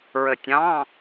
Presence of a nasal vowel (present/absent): present